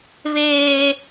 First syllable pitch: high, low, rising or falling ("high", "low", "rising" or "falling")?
high